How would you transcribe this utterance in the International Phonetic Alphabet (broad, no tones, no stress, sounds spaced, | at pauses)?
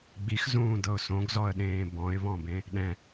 ɡ͡b i x z ũː d ɤ ʊ̯ s õ ɡ z ɔ ə̯ ɗ ẽː b ɔ̃ ɪ̯ β ɔ̃ b ẽ | ɗ ɛ̃